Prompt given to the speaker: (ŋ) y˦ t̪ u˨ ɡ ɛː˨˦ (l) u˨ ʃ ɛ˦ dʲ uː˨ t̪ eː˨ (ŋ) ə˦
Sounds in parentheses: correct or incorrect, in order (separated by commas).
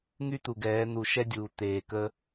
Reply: correct, incorrect, incorrect